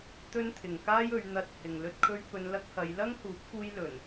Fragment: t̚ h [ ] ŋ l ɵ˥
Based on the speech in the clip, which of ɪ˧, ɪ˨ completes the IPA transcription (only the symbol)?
ɪ˨